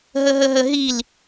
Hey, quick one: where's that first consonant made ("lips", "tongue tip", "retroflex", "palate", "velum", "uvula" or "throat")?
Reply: throat